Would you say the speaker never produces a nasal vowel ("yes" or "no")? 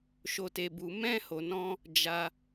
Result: no